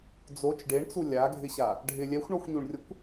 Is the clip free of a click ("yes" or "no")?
yes